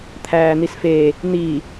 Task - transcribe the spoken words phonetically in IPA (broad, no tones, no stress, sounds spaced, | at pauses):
t̪ʰ æː n̪ i s f e | n̪ i